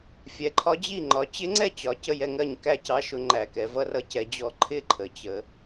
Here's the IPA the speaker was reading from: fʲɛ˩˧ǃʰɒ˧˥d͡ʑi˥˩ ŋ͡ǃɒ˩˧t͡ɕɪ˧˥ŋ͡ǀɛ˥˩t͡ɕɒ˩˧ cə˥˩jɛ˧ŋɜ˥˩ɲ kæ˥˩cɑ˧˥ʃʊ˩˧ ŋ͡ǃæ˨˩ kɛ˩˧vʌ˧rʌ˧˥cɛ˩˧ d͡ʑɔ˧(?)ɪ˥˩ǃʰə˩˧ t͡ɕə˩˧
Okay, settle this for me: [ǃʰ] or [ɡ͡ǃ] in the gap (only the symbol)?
ǃʰ